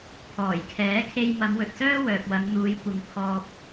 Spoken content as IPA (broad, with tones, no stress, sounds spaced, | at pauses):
pʰ ɔː˨˩ j kʰ ɛː˨˥ kʰ e˧ j m ɐ˨˧ m w ɵ˨ t̚ s œː˥ w œː˨ p̚ w ɐ˨˧ ŋ n̪ uː˨˧ j kʷ ɪ˨˧ ŋ pʰ ɔː˧ p̚